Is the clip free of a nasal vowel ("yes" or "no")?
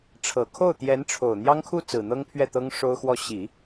yes